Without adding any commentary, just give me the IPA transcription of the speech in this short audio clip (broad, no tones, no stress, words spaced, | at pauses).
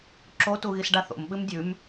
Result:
ǁotuɣisɖa θo̰mɓɨm dʲʉm